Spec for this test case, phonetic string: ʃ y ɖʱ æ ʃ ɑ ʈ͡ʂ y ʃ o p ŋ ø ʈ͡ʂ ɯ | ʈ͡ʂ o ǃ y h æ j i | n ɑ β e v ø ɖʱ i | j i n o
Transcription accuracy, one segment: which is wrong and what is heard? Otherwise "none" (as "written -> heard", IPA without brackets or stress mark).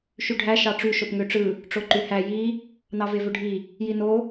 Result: β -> v